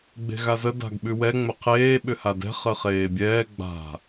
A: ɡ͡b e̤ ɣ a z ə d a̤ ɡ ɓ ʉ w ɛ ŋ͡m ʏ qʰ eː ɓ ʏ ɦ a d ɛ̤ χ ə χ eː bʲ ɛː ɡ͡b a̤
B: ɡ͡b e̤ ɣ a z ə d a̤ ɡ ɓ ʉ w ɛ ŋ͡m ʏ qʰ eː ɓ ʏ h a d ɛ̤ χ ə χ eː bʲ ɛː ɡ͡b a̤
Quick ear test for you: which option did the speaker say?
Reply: B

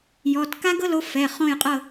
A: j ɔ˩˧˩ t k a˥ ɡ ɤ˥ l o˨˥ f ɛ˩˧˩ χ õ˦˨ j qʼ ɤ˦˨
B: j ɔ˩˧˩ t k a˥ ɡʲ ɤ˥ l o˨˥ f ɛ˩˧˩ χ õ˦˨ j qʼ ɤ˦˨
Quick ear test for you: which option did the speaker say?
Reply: A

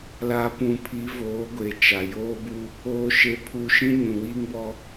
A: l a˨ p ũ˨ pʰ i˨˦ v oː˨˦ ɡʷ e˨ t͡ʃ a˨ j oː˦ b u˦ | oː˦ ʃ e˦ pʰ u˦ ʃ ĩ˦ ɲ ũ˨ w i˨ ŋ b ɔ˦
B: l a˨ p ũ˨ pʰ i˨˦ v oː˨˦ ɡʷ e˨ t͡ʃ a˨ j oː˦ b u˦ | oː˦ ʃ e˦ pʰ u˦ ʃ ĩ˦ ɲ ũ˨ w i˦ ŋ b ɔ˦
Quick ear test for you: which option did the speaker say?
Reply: B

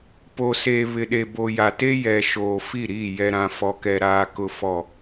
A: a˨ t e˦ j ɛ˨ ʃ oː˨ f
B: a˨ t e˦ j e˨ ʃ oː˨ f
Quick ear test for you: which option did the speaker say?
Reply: A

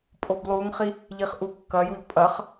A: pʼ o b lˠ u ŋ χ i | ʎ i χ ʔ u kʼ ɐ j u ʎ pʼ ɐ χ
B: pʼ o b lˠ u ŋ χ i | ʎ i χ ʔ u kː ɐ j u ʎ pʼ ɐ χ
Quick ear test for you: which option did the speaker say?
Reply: B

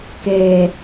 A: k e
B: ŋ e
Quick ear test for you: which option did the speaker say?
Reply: A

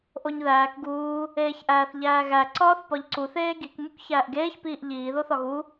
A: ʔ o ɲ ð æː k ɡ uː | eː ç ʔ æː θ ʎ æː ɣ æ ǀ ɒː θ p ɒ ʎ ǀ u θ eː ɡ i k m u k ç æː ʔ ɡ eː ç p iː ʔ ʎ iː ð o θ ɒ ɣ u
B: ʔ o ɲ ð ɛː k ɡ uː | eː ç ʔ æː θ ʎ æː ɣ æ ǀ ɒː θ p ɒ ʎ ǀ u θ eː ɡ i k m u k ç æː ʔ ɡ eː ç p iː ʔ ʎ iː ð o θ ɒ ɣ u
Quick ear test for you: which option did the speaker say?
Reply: A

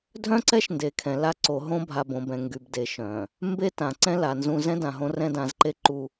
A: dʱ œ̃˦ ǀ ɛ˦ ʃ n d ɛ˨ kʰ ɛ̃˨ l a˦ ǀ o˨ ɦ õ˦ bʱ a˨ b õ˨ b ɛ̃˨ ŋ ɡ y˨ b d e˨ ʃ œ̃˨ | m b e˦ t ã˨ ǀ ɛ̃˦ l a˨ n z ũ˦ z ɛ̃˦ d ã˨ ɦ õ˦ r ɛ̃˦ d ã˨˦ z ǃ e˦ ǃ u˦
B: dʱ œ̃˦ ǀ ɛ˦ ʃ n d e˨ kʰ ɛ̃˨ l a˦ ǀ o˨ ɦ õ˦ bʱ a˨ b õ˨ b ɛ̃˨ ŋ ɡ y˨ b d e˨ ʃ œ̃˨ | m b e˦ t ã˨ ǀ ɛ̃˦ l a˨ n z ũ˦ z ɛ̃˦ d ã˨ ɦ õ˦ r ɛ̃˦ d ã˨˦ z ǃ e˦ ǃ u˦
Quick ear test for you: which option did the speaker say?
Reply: B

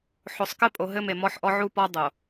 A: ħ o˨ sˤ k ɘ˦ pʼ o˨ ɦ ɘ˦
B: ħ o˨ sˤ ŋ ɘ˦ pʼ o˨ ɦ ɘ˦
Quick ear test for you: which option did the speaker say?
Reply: A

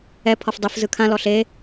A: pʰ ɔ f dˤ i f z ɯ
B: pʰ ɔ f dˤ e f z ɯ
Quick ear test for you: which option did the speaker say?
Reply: A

